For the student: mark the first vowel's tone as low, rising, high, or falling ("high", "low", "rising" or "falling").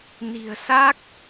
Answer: low